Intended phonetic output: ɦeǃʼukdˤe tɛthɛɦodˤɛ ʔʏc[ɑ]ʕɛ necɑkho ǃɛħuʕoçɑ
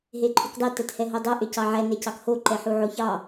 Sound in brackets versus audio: correct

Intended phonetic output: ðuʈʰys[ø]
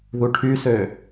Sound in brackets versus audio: correct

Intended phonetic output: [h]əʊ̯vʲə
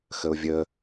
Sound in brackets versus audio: incorrect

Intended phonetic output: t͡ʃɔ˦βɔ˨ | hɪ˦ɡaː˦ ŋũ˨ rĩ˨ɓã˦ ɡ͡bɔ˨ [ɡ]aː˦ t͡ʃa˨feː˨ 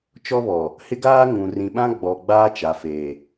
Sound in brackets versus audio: incorrect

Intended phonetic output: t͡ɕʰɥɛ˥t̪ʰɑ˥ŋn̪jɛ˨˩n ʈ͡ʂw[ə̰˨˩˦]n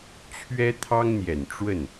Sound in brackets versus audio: incorrect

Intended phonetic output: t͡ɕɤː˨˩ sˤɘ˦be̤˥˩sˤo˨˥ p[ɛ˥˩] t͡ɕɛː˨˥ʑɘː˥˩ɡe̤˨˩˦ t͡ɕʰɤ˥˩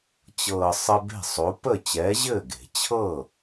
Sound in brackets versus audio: incorrect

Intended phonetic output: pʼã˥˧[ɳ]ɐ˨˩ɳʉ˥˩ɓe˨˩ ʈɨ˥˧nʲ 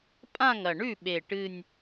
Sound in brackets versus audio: incorrect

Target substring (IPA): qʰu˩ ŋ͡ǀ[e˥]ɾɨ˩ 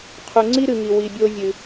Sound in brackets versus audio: incorrect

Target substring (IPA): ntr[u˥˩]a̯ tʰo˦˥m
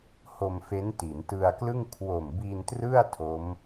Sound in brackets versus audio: incorrect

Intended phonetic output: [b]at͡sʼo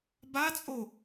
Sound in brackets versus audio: correct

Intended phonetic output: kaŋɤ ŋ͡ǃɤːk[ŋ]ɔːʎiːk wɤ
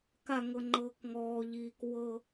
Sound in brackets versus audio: correct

